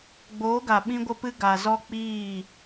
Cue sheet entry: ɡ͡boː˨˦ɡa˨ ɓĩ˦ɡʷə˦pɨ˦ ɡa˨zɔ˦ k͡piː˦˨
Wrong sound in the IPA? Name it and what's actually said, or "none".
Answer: none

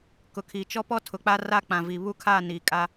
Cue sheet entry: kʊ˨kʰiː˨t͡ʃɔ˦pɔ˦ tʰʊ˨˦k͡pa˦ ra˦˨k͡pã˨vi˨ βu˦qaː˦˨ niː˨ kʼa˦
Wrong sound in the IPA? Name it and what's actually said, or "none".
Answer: q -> kʰ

